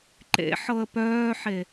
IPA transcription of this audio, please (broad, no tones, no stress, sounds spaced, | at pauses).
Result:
ǃ ḛ ħ ɤ ə̯ p œː ħ e